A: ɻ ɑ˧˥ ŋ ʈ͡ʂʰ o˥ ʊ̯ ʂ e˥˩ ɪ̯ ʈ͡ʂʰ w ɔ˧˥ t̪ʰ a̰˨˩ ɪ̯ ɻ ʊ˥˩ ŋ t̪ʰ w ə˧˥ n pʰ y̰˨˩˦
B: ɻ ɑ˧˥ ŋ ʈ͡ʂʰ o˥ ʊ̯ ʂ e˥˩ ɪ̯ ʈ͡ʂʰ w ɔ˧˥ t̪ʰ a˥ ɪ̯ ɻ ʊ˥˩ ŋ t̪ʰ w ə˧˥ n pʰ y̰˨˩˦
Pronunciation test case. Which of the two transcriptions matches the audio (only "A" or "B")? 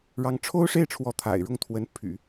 A